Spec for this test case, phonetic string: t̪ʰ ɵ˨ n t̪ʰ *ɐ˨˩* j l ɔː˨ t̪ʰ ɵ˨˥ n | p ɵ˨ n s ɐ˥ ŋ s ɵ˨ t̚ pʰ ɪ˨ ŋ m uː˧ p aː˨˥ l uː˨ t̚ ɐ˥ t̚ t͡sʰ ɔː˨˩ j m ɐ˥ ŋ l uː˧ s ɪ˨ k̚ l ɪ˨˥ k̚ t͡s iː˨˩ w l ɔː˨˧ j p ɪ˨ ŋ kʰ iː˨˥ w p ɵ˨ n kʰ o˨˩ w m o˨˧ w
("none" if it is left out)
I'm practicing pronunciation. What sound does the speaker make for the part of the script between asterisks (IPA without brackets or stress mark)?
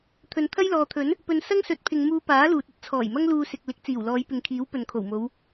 ɐ˥